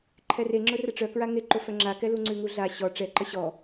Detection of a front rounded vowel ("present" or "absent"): present